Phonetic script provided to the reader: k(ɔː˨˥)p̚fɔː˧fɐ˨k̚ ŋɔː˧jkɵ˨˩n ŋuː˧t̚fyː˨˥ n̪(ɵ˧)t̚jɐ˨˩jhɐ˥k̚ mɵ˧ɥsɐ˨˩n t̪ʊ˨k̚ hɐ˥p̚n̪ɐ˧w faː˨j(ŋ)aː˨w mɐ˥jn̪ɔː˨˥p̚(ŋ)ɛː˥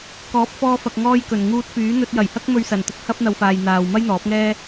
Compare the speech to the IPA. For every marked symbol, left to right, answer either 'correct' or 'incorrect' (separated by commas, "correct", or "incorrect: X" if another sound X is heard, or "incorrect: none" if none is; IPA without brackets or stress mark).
correct, correct, incorrect: n̪, correct